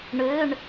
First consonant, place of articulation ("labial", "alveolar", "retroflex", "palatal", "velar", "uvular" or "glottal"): retroflex